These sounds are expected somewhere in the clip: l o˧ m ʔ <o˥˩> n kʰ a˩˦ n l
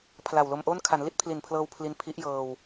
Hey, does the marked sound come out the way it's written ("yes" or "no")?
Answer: yes